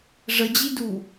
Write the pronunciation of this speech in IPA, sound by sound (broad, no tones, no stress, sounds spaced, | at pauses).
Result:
ʐ ə d͡ʑ i d u